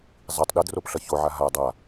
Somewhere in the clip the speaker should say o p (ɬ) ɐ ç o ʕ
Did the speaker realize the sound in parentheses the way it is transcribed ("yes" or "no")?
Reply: yes